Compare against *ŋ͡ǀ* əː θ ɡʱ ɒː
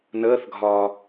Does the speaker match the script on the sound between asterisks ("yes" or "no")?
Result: no